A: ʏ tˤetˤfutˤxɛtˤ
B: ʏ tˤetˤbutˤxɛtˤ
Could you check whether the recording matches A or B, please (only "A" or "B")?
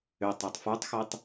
A